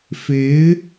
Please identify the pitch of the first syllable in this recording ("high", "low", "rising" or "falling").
rising